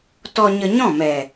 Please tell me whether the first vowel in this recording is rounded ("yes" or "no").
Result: yes